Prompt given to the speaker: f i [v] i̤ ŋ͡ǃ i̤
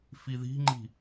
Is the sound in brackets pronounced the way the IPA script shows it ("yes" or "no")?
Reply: no